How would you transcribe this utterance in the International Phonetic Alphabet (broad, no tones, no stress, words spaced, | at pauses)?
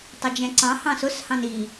tˤʊd͡ʒɛ̃ǀɑ̃ hɑ̃sʊs hɑ̃ni